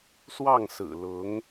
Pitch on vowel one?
falling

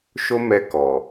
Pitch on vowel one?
high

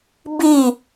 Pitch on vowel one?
falling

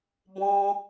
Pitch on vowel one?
high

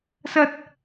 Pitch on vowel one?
high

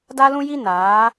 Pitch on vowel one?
high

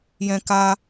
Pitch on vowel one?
high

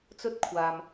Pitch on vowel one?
high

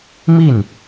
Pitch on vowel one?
falling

